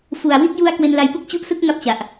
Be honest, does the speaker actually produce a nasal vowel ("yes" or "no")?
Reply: no